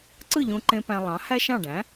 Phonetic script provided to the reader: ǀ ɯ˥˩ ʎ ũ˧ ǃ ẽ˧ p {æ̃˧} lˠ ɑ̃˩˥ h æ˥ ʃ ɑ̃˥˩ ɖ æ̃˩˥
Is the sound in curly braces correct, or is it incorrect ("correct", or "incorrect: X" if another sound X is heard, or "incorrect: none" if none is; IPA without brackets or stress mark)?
correct